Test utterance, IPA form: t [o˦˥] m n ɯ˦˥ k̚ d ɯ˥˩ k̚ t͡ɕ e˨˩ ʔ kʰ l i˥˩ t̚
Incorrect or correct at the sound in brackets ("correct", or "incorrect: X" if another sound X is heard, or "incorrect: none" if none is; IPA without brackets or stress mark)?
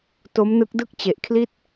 correct